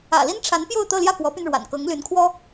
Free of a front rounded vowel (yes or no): no